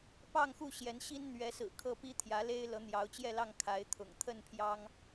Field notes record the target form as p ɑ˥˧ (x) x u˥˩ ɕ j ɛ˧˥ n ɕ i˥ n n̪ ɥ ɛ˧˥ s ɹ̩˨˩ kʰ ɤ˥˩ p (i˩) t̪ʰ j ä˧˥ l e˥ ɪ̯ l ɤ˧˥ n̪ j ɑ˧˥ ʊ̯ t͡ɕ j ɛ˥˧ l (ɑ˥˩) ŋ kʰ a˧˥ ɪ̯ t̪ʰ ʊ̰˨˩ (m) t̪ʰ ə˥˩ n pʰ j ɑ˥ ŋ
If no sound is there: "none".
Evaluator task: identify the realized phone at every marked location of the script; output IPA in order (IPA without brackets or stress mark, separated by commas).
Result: ŋ, i˥, ɑ˥˩, ŋ